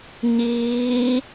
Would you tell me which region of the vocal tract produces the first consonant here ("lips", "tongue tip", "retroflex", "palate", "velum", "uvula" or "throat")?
palate